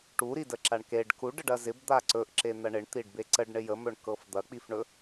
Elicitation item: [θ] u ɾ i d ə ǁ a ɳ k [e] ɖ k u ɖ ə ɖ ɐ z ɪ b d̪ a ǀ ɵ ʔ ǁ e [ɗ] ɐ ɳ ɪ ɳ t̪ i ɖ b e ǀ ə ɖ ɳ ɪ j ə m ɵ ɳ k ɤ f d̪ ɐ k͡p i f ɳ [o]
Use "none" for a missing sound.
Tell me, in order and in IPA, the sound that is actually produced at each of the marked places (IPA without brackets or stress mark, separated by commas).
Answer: ʈ, e, n̪, ɵ